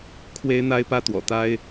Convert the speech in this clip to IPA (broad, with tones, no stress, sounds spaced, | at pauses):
kʰ w e˦ ɪ̯ n̪ a˦ ɪ̯ p ä˦ t̪ w ɔ̰˨˩ t̪ a˦ ɪ̯